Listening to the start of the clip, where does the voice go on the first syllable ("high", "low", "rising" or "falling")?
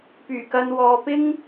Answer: low